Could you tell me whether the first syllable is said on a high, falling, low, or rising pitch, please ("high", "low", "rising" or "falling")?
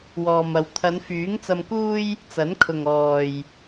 low